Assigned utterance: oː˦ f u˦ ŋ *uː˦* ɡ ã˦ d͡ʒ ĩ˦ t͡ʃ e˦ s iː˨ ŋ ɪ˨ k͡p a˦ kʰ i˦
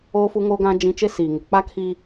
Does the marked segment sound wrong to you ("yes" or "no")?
yes